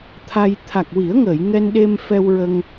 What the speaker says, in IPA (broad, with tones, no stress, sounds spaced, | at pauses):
t̪ʰ a˧ j t̪ʰ a˨˩ k̚ w i˨˩˦ ə̯ ŋ əː˨˩˨ j ŋ ɛ˧ n ɗ e˧ m f ɛ˧ w ɹ ə˧ ŋ